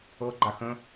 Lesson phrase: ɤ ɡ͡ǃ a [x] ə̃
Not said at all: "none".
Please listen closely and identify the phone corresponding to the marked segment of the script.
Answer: x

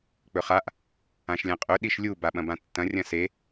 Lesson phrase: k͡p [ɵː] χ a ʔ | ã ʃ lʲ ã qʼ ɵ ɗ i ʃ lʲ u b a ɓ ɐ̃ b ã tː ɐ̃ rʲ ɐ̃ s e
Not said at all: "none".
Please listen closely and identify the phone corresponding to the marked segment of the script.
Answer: ɵ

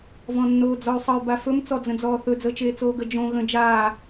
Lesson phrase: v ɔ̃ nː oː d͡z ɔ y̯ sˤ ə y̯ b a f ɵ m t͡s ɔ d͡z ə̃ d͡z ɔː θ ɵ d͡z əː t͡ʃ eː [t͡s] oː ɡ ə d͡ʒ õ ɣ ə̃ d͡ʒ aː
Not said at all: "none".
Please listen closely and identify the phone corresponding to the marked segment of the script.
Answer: t͡s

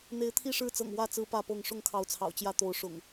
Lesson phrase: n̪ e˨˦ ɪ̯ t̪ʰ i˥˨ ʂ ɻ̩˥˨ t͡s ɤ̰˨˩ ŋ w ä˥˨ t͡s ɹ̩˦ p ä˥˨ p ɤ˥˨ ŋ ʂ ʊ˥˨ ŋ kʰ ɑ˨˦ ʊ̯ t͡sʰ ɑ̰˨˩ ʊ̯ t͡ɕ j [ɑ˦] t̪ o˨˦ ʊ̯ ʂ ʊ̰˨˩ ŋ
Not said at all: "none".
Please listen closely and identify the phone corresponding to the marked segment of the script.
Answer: ä˦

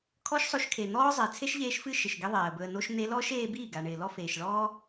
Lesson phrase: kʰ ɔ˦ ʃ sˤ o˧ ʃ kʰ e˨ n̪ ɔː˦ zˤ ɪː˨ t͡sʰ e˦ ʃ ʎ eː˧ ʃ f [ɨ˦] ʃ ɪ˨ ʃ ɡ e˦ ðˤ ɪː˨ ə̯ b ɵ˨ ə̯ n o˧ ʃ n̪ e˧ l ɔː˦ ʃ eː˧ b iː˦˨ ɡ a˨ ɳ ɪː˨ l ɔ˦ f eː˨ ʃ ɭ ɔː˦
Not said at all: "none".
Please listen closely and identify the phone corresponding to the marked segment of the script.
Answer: ɨ˦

